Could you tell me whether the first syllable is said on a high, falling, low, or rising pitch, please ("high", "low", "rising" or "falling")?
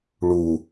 low